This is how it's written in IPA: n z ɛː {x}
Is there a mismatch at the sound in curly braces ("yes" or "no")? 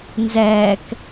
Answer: yes